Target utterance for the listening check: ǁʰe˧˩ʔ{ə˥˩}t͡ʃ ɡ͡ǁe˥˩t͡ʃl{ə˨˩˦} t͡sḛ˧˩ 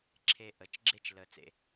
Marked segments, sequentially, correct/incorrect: incorrect, correct

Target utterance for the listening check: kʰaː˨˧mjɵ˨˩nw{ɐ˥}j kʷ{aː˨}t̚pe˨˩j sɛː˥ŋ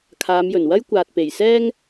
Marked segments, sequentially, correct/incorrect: correct, correct

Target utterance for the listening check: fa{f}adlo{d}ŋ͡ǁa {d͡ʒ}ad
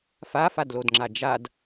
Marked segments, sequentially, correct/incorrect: correct, correct, correct

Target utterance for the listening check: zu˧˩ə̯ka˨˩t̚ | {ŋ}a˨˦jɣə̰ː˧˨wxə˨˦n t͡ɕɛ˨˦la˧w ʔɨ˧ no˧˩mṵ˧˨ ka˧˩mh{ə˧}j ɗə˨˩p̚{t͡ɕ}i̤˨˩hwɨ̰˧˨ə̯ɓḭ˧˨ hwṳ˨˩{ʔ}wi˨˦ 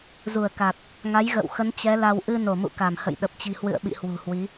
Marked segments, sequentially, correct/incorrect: correct, incorrect, correct, incorrect

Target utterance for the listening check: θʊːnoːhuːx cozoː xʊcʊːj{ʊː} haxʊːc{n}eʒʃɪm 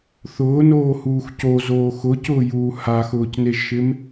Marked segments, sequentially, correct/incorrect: incorrect, correct

